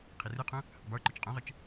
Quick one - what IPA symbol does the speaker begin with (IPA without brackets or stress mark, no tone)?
qʰ